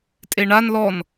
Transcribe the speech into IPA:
tʼ e ɳ a n l ɔ n

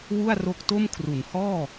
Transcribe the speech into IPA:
w u˥˩ a̯ r o˦˥ k̚ t o˥˩ m kʰ r u˩˦ n h ɔː˥˩

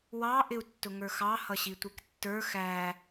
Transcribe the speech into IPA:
w ɑ ʔ ɪ u̯ tː ʊ ŋ ə˞ x ɑ h ʌ ɕ i tʷ i k tː ə˞ x æ

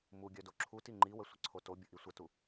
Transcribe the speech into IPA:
m u ɡʲ œ d o ǁʰ u t i ŋ͡ǃ i w ə sʷ ə ǀʰ o t o bʲ ə ʔ i sʷ ə t u

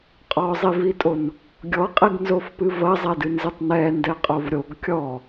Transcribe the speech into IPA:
qʼ ɔ zˤ i v i tʼ o n | ɡʲ ɔ qʼ i ɡ n z o f p ɨ v ɐ zˤ ɛ d ɨ n z ɨ tˤ n ɛ n d ɛ qʼ o v ɾʲ o ɡ kʲ ɔ

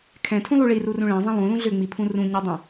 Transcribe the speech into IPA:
kʰ ɛ̃ tʰ ũ lˠ u ɭ i r u r ũ ɭ ɛ̃ zˤ ɛ̃ lˠ ũ l ũ ɮ ʏ ŋ͡m i pʰ ũ r ũ ɲ ɛ dˤ ɛ̃

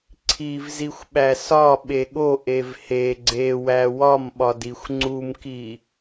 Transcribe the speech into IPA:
ǀʰ i v z i xʷ ɓ æ s ɒ ɓ e ɠ o ʔ e v h e ɡ͡ǀ e w æ w ɒ m ɓ ɒ d i xʷ ŋ͡ǀ u m k i

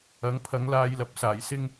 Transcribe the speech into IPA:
ɐ˨˥ ŋ pʰ ɐ˨˥ ŋ l aː˧ j l ɐ˨˥ p̚ s aː˨˩ j s ɪ˥ ŋ

